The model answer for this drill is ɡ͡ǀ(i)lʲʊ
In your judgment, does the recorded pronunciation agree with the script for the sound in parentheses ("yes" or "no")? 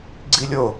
yes